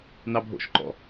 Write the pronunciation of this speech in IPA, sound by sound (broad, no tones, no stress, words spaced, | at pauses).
nɑbʱo̰ʃǃɔ̰